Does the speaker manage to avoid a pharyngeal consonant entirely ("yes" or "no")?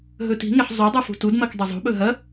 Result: no